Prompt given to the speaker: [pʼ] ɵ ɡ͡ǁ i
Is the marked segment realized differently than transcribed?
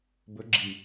yes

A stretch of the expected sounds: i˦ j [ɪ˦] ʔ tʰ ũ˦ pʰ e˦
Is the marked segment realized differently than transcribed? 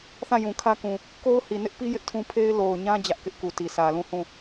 no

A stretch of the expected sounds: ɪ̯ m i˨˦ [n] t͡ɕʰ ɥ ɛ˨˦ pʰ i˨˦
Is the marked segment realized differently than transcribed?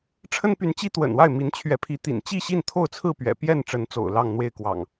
no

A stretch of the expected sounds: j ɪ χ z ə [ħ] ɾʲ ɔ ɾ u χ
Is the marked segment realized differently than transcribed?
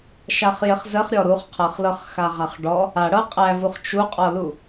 yes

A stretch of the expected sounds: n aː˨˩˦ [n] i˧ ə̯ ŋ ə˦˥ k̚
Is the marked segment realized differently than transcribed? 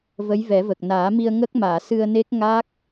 yes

